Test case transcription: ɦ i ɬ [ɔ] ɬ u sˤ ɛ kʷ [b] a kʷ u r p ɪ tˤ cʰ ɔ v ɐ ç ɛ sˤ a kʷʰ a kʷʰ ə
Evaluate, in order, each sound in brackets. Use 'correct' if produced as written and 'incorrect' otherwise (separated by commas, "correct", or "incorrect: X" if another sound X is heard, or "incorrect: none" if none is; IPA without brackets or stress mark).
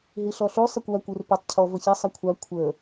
correct, incorrect: w